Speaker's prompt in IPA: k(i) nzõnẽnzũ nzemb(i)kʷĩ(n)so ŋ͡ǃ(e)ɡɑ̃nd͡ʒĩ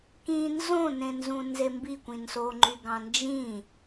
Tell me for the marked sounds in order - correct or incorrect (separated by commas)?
incorrect, correct, correct, incorrect